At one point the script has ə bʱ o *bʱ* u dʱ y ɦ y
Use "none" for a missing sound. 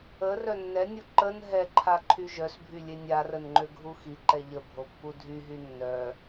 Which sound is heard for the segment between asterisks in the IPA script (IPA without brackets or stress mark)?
pː